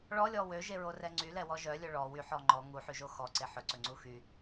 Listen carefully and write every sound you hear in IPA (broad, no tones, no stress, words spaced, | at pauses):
ɭɔlʲɔ wøʒeɹorɛ ŋ͡ǀylɛwɔ ʒœlʲɵ ɭɔ wyħɔ ŋ͡ǃɔ ŋuħyʒo xɔǀe ħɵǀɵŋ͡ǀu xy